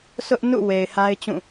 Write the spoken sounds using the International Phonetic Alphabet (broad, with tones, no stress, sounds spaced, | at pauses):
s ʊ˦ ʔ n ṵ˦˨ w e˨ ɪ̯ h a˦ ɪ̯ t͡ɕ ũ˦˨